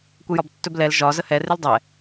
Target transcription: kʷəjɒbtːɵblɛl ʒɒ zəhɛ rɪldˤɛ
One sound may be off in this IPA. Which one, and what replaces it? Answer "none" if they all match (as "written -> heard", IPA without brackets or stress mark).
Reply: none